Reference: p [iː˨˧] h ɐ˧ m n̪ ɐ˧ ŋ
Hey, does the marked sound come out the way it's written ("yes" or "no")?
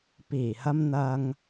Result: no